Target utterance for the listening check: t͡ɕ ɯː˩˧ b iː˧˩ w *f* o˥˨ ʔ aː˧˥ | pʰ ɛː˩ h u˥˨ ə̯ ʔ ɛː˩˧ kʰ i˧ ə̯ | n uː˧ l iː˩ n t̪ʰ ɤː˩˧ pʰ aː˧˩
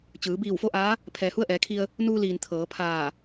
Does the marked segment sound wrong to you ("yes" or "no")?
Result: no